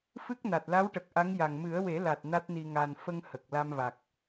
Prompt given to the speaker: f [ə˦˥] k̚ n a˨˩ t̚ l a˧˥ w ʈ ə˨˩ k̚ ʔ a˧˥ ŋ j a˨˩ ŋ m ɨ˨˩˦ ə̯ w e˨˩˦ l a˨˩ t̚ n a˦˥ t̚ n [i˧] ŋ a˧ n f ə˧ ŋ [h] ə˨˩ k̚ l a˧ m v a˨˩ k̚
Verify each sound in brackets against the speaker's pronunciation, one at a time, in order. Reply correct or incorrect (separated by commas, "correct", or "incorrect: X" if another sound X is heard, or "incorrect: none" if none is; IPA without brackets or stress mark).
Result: incorrect: ɨ˦˥, correct, correct